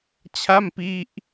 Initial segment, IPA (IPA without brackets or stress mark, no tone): t͡ɕʰ